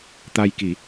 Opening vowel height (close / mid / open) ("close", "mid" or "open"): open